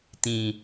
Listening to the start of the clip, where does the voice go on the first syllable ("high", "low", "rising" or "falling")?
low